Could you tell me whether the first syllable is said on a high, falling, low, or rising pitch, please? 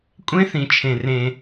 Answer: high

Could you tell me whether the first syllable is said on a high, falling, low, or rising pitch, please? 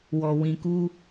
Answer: low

